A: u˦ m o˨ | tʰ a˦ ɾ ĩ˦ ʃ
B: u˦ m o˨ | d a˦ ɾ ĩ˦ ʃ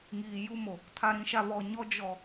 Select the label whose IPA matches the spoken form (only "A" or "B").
A